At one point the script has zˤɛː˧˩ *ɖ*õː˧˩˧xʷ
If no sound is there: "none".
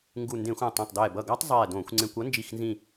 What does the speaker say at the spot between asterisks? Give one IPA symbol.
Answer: d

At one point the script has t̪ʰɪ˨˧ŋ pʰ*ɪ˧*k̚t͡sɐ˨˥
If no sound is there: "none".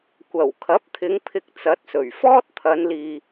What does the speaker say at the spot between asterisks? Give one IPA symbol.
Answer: ɪ˧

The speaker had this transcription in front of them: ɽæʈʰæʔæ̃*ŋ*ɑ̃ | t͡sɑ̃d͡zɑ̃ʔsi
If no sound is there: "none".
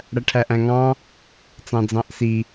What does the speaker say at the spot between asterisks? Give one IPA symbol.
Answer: ŋ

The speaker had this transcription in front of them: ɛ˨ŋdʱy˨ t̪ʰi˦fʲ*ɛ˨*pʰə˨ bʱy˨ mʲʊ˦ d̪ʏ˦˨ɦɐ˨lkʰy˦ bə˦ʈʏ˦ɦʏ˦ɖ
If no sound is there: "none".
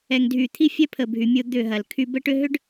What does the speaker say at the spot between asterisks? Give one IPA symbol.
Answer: ɛ˦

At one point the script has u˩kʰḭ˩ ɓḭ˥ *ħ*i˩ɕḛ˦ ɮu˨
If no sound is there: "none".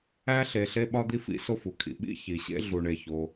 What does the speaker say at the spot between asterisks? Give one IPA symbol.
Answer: ç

